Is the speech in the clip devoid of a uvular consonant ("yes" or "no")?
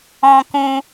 yes